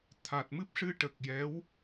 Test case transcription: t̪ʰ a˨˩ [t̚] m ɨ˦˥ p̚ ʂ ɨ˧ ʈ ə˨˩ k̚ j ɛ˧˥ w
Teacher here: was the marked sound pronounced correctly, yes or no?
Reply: yes